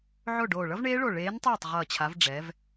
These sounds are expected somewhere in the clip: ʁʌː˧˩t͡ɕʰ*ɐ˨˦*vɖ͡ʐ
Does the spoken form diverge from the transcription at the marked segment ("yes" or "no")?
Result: yes